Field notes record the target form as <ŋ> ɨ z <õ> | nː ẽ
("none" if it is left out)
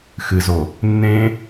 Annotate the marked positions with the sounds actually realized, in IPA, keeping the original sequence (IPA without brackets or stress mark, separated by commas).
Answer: x, o